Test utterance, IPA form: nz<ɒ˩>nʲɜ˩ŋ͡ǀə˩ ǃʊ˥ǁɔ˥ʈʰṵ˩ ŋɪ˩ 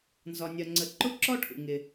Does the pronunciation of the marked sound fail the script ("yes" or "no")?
no